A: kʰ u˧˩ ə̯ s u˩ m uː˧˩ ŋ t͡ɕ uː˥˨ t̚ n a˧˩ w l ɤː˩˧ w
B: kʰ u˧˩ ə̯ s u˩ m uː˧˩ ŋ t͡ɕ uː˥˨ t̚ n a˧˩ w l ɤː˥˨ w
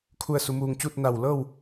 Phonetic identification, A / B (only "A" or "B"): B